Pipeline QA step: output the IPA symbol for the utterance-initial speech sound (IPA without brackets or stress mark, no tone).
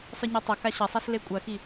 sˤ